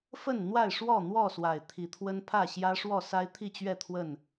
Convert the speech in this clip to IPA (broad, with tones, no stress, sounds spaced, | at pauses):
f ə˥˨ n n̪ w a˥˨ ɪ̯ ʂ w ɔ˥˨ n̪ w ɔ˥˨ s w a˨˩ ɪ̯ t̪ʰ i˨˦ t̪ʰ w ə˦ n pʰ ä˥˨ ɕ j ä˦ ʂ w ɔ˥˨ s a˦ ɪ̯ t̪ʰ i˥˨ t͡ɕ ɥ ɛ˥˨ t̪ʰ w ə˥˨ n